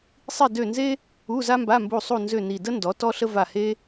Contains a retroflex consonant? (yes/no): no